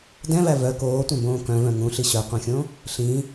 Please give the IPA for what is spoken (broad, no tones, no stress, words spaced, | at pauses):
dɛ̃væ vœ koːtʷœ̃bõː kœ̃vœ̃ ŋũɬi ɕœqʷœ̃xʲõ | ɬĩ